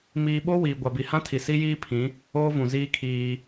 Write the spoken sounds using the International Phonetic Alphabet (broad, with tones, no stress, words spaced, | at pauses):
miː˨ɓo˦ wiː˨ ɡʷa˨bi˨hã˦tʰi˨ si˦jiː˦pʰĩ˨˦ | oː˦vũ˨ziː˦kʰiː˦